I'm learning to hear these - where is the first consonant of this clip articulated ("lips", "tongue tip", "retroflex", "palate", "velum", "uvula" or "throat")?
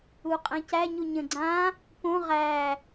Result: uvula